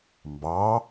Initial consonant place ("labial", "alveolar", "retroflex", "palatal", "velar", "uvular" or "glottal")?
labial